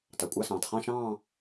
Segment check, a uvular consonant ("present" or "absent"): present